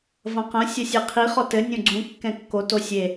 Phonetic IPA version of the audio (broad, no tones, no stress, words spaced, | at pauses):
vɐ̃qɐ̃ sʲɐsʲeqʰi χɔtɘ nʲõɡ͡ǀũ kːɛ̃kːo tosʲe